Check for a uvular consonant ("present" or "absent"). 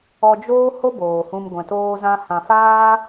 absent